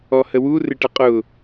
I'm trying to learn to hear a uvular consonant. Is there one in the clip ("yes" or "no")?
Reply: yes